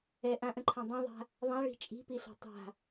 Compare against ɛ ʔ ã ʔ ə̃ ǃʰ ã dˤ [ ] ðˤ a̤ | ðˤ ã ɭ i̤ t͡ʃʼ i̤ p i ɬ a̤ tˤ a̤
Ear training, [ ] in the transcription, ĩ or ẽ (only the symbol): ĩ